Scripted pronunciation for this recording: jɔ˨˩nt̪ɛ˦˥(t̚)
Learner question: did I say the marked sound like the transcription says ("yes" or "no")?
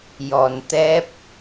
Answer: no